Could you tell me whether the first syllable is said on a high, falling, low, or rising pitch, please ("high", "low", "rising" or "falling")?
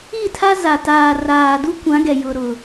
falling